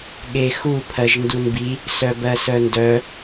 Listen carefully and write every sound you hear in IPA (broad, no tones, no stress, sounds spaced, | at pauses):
ɠ e x u pʰ ɜ ʒ n d u n b i | s œ b ɜ s œ n d œ